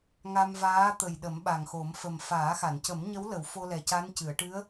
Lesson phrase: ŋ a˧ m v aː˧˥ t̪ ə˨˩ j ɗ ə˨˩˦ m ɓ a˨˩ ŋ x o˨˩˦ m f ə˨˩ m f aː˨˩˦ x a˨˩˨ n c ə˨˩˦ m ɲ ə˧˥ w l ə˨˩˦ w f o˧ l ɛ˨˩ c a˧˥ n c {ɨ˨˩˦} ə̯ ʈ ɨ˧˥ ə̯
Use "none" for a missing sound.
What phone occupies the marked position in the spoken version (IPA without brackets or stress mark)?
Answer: ɨ˨˩˨